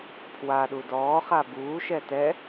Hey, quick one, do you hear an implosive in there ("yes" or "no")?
yes